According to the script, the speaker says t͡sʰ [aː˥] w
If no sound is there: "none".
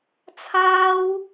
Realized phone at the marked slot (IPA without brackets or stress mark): aː˥